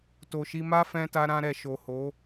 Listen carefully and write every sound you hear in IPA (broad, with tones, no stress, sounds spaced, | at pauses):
t o˨ ʃ i˧ m a˦ f ɛ̃˧ t a˧ ɾ ã˦ ɾ ɛ˧ ʃ o˨ h o˨˦